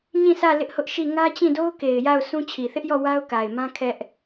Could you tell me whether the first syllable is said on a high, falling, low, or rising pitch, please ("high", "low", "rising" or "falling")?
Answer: falling